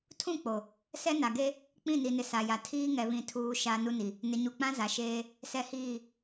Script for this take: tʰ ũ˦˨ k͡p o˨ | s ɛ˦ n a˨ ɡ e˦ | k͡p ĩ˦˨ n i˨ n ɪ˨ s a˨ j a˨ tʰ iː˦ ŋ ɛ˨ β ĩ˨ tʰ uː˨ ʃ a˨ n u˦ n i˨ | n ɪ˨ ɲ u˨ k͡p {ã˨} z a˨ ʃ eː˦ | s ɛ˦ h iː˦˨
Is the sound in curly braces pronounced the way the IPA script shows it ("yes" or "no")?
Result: no